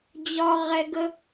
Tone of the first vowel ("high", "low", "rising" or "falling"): low